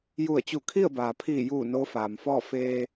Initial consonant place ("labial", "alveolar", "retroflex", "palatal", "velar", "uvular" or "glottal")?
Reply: palatal